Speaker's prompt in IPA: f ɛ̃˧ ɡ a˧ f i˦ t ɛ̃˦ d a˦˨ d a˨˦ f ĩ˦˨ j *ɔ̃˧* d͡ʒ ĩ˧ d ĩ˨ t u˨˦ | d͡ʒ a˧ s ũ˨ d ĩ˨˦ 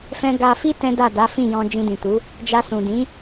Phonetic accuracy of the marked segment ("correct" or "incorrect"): correct